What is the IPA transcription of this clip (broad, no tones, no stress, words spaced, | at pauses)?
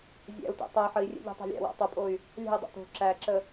zʲæ̰u̯tḛ tˤe ħəi̯rʲḛʎe̤ tˤæ̤lʲæ̰ wæ̰tˤopʼoy̯ | lʲæ̤i̯ dˤo̰to̤ ǁæǁə